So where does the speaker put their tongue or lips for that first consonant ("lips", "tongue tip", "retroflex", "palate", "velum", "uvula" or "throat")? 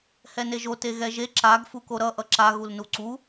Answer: throat